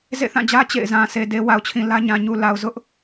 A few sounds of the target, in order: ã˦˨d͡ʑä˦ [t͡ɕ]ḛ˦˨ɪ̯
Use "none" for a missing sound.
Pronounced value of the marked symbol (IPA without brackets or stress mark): t͡ɕ